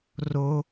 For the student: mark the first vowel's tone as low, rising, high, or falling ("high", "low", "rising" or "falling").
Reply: high